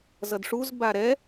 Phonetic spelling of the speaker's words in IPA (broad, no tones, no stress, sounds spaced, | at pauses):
z ʌ d ʂ u z b a ɾ ɛ